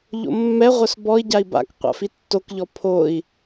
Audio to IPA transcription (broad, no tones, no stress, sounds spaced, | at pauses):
ʎ o̰ mː ɛ ʁʷ œ s b ɔ i̯ ɟ a i̯ b a̰ k qʷ a̰ f i tː o k ʎ ɔ pʰ o i̯